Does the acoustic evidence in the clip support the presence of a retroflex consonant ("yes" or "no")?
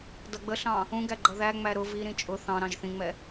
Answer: no